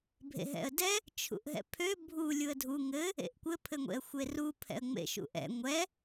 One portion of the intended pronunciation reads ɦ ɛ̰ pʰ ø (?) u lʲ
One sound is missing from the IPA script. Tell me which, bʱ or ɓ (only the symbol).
bʱ